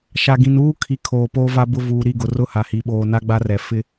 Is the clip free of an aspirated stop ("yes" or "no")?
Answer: no